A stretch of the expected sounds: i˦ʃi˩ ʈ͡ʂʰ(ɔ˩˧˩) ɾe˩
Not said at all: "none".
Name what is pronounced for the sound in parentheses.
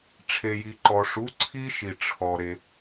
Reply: ɔ˩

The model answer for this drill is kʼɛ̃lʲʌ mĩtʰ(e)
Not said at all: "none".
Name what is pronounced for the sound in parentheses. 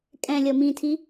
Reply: i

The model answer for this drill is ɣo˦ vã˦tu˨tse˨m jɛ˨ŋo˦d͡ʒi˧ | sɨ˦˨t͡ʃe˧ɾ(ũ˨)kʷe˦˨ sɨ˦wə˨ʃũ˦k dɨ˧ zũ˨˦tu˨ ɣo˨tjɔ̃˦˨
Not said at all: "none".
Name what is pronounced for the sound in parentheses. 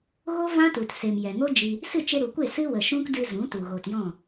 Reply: u˨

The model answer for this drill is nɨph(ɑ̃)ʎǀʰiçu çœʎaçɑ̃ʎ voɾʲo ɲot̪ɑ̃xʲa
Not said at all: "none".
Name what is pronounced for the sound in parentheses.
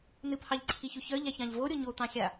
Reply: ɑ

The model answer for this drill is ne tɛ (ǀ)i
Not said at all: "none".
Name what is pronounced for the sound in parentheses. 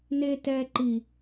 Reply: ǃ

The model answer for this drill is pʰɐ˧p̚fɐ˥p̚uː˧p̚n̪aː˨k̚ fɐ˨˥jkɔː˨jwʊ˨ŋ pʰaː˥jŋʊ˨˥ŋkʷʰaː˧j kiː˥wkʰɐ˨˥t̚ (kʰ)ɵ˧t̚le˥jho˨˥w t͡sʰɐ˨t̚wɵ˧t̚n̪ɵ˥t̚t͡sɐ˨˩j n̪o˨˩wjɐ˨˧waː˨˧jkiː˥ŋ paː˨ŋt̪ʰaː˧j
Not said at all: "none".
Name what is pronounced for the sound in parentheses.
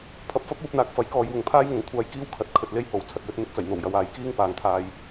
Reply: kʰ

